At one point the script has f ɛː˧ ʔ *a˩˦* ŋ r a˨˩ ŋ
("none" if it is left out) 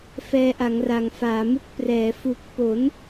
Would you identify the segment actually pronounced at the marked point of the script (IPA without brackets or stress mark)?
a˩˦